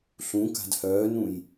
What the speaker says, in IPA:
ɬũka̤d hœːnũj

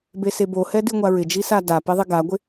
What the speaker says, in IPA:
besebohɛ diŋʷaɹɪd͡ʒi sadapi ðˤiɡaɡʷɪ

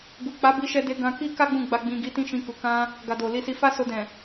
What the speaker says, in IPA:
ɡu˨k͡pa˨˦bi˧ ʃɛ˧de˧ ɡã˧ki˦ ka˦ ɡ͡bũ˦˨ɡ͡ba˧ɡ͡bĩ˧ ɡi˧tĩ˦ʃĩ˧ku˨ kã˧ | ɡa˨do˨li˧si˧ fa˦so˧ dɛ̃˨

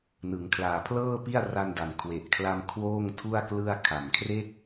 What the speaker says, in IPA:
nɯ˩˦ŋkʰlaː˨˩pʰlɤː˥˩pi˥˩a̯ ra˧nda˨˩nkʰwe˨˩ʔkʰla˧m kʰwoː˥˩ŋtʰu˥˩a̯klɯ˥˩a̯ kʰa˨˩mkʰre˥˩k̚

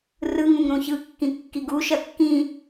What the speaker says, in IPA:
rɯŋũŋ ɾũçɯkːĩ kːiɡuʃɐ kːĩ

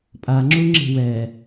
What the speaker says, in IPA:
pʼaŋ͡ǁuŋ͡ǁe̤ wɛ

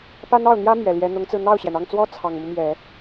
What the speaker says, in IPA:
pa˥nɑ˥˩ʊ̯n̪jä˥ mɥɛ˨˩ljɛ˧˥ n̪ʊ˧˥ŋt͡sɹ̩˧ n̪ɑ˥˩ʊ̯ɕjɛ˩nɑ˥˩ŋt͡swɔ˥ t͡sʰɑ˨˩ŋmu˦mjɛ˨˩˦

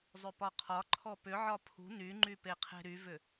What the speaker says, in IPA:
zˤʏpɒqʰɒǃʰɔ pʏʕɒ pʰṳ nyŋ͡ǃy peqʰe̤ɾyvʏ

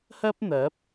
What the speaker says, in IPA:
hɐ˥p̚ n̪ɐ˨˥p̚

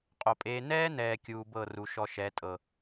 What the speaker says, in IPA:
qʼo˨pʼeː˧ nɛː˦nɛː˨ kʲuː˧bɤ˦˨ru˨ ʃɔ˧ʃɛ˨˦tʼɤ˨

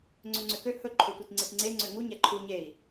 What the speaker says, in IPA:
ŋ͡ǀøŋ͡ǀøkø hɵ ǃʰɵtʷitŋ͡ǀetŋ͡ǀe ŋ͡ǀøŋu ɲæǃʰu ɲei̯

